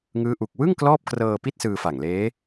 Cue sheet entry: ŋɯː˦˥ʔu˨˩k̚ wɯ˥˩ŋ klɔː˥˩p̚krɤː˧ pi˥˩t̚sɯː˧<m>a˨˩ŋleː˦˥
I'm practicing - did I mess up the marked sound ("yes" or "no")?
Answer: yes